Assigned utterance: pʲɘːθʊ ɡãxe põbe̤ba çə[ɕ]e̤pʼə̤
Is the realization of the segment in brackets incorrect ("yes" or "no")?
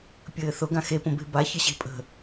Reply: no